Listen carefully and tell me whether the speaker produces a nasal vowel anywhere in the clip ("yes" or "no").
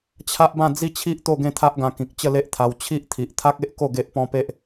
yes